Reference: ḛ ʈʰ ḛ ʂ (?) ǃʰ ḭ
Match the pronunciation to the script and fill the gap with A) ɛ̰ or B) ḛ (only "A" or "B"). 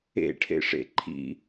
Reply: B